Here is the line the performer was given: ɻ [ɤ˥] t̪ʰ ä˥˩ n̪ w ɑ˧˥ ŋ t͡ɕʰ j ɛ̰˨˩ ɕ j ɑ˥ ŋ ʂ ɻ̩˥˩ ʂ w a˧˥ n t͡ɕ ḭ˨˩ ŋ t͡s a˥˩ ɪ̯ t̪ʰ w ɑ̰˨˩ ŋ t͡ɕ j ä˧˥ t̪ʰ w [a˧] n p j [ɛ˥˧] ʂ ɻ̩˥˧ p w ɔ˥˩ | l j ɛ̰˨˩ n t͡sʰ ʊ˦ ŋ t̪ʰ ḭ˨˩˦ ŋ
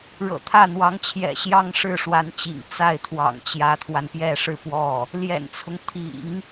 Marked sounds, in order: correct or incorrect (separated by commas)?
incorrect, correct, correct